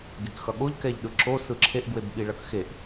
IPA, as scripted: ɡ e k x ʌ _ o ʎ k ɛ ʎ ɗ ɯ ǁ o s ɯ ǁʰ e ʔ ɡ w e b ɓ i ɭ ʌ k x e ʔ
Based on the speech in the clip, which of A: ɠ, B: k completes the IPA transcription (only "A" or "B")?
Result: A